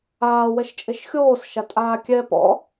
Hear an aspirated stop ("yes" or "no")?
no